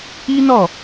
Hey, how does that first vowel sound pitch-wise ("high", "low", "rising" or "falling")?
high